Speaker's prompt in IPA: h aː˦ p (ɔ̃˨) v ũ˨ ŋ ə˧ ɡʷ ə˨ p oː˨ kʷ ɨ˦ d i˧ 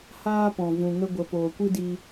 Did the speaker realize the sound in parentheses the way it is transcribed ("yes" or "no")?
yes